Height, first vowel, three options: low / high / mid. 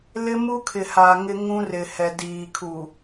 high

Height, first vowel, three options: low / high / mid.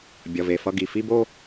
mid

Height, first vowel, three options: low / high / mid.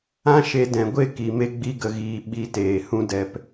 low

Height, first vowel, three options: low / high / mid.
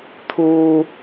high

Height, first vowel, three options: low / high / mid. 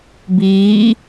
high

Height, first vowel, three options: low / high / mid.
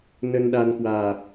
mid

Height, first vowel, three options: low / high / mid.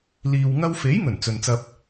high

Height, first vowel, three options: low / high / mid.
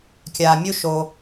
low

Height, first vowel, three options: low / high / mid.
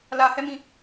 low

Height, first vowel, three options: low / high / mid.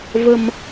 mid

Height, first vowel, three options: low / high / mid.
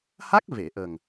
low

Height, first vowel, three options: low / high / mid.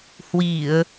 high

